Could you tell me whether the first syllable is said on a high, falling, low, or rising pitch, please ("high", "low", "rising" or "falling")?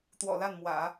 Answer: low